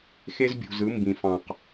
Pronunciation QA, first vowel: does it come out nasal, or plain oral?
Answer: oral